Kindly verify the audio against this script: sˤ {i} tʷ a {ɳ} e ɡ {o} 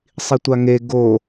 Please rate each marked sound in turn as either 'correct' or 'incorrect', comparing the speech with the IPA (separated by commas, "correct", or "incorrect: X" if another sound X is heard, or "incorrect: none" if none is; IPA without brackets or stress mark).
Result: correct, incorrect: ŋ, correct